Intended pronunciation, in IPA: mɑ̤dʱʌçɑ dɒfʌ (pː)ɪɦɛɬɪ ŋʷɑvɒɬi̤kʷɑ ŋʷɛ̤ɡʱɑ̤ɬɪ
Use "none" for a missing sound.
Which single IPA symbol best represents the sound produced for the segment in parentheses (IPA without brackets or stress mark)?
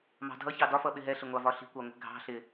ɓ